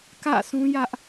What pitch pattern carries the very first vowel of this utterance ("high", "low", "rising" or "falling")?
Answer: falling